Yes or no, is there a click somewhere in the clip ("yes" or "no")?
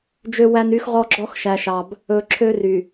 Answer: yes